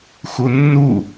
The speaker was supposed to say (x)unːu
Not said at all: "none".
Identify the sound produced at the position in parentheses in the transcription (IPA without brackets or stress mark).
x